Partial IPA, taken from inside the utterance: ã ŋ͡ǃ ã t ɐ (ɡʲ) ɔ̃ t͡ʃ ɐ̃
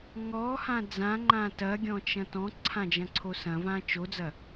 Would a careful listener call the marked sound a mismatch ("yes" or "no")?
no